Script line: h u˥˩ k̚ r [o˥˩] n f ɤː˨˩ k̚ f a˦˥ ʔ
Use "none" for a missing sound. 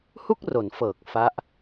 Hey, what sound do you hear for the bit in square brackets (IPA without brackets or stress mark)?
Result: o˩˦